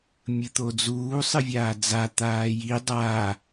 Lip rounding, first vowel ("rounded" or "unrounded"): unrounded